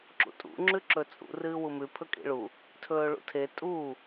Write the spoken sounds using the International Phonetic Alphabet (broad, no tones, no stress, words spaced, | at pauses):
ǁṵtʼṵ ŋ͡ǁʉǁɵt͡sʼṵ rɨːwumʉ pʰɵkʼḭɭu | tʰɵːɭṵtʰe tʼu